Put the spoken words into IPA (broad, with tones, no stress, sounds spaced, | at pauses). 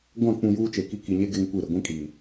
ɡʷ ã˦˨ k͡p ũ˨ j uː˦ t͡ʃ e˨ k i˦ k i˨ ɲ e˦ ɡ e˦ ŋ kʷ i˦˨ ɾ ɪ˨ ɡʷ ĩ˦ kʼ iː˨